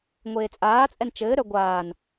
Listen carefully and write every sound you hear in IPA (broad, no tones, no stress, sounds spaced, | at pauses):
ŋʷ eː t͡sʼ aː t͡sʼ ɛ n t͡ʃ ɘː ɾ œ ɡʷ aː n